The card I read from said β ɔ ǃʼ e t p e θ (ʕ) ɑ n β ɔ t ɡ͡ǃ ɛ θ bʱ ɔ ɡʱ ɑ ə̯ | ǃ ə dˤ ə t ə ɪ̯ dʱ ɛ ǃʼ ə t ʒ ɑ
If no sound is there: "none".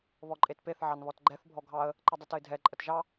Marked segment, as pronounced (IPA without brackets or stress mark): ʕ